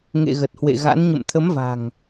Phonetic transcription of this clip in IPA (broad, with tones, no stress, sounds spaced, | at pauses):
ŋ ḛ˧˨ ɣ ə˨˩ t̚ h w ḛ˧˨ ɣ a̰˧˥ n ɲ ə̰˧˨ m t̪ʰ ə˨˦ m v a̤˨˩ ŋ